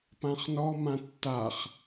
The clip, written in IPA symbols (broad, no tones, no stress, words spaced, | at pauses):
pãχnɔ mãtːaχ